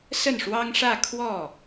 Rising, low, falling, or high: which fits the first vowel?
falling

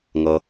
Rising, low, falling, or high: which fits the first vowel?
low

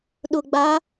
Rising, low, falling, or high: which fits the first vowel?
low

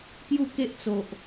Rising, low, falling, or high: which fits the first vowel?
falling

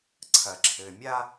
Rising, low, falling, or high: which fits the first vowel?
low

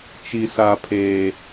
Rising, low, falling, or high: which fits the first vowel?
high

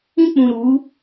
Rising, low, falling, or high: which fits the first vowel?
high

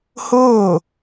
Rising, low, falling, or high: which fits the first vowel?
falling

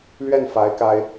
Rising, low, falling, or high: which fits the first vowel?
falling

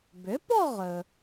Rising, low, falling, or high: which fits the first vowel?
rising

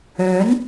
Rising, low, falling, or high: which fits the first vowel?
rising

